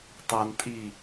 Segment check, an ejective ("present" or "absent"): present